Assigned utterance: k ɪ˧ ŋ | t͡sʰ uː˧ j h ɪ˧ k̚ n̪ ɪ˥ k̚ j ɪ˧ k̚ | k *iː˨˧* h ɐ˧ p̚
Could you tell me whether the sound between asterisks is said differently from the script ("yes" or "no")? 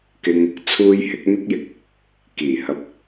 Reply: yes